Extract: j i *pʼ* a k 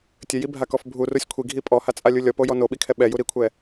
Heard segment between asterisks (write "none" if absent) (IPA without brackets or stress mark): bʱ